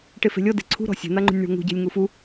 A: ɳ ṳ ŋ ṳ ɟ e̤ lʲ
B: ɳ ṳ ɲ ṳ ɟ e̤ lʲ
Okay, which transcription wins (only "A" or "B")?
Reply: A